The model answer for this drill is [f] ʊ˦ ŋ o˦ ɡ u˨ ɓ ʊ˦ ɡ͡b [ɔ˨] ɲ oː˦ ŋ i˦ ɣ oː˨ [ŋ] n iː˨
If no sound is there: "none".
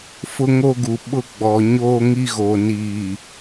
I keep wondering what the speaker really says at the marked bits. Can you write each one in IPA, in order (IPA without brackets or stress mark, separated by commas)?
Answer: f, ɔ˨, none